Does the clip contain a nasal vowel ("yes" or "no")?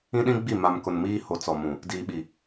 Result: yes